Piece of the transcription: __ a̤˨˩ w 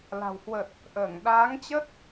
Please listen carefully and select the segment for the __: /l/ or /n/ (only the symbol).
l